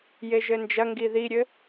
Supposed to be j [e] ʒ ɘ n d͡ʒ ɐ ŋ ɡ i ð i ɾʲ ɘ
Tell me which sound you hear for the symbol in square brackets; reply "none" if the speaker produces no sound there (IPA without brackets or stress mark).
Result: e